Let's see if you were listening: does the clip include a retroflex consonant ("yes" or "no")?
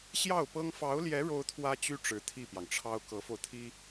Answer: yes